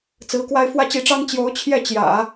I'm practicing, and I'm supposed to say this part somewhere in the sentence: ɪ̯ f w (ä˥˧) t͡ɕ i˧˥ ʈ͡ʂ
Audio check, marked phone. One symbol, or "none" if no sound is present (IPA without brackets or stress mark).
ä˥